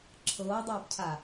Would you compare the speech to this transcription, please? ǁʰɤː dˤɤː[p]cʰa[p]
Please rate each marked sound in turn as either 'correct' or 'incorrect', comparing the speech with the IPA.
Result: correct, incorrect: none

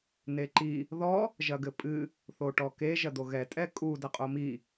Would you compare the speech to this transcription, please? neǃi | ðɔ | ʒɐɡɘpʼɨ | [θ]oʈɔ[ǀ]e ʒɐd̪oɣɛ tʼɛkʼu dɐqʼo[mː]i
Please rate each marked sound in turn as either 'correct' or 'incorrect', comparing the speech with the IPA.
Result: correct, incorrect: k, incorrect: m

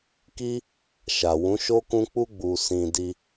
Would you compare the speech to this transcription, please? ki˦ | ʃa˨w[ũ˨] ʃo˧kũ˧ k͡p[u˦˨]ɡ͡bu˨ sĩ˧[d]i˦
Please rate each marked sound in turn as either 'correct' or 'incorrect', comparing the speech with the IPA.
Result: incorrect: ũ˨˦, incorrect: u˧, correct

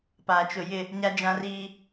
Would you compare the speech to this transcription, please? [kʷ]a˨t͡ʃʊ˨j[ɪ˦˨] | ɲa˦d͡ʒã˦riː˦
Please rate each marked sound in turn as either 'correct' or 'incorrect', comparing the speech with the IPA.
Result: incorrect: p, correct

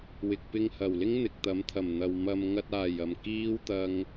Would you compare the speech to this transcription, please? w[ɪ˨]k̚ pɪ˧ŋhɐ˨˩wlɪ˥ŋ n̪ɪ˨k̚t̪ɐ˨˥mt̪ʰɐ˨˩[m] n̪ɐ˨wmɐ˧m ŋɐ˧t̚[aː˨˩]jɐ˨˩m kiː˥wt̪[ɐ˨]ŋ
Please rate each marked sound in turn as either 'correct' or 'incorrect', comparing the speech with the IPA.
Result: correct, correct, correct, incorrect: ɐ˧

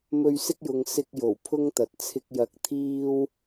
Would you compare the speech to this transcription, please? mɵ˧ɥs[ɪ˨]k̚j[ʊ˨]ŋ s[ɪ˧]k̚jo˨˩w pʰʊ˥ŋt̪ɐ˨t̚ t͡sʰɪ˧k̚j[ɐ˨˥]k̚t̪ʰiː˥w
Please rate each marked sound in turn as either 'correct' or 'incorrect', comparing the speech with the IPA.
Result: incorrect: ɪ˥, correct, correct, correct

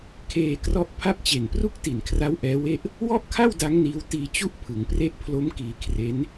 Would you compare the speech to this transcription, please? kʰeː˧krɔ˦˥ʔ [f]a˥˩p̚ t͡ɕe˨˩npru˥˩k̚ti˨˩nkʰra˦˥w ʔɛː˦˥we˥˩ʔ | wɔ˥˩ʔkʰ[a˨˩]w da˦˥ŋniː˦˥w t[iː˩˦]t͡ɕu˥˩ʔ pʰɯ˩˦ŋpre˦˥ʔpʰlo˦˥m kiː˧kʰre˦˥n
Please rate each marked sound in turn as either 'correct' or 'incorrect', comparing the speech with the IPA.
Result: incorrect: pʰ, incorrect: a˥˩, incorrect: iː˧

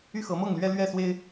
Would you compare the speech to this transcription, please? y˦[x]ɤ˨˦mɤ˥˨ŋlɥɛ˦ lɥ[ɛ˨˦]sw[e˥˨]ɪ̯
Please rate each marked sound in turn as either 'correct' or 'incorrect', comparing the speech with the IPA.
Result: correct, incorrect: ɛ˥˨, incorrect: e˦

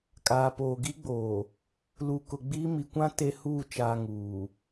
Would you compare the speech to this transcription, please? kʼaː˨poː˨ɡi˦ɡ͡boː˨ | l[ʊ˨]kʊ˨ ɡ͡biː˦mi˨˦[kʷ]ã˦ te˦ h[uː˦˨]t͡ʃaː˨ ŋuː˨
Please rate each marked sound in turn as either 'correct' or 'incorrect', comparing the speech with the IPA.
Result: incorrect: u˨, correct, correct

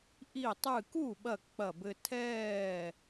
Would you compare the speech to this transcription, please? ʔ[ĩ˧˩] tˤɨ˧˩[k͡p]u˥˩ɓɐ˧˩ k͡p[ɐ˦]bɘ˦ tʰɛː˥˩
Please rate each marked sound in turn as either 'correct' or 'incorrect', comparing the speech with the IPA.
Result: incorrect: i˧˩, incorrect: k, incorrect: ɐ˧˩

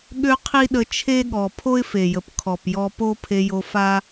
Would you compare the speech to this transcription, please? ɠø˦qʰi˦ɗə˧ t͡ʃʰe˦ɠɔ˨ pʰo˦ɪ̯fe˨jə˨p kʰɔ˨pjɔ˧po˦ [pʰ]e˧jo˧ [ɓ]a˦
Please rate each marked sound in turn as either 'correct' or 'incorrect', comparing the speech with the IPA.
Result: correct, incorrect: f

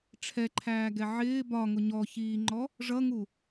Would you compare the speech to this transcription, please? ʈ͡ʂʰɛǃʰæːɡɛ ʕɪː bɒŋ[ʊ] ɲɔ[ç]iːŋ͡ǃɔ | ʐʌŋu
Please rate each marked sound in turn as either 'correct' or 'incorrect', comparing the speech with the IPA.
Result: correct, correct

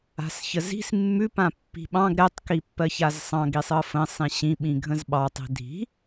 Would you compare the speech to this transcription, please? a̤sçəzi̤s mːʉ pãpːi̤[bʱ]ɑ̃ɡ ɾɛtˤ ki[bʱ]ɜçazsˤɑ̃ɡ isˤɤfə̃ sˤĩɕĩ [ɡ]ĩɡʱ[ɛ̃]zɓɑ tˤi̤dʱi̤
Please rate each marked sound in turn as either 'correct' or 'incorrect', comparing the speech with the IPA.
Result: incorrect: ɓ, incorrect: pː, incorrect: ɓ, incorrect: ə̃

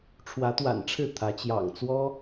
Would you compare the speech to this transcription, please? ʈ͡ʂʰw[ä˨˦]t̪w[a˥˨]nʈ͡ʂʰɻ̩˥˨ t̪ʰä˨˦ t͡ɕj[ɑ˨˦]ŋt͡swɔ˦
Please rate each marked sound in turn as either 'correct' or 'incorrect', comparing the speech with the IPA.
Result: correct, incorrect: a̰˨˩, incorrect: ɑ̰˨˩

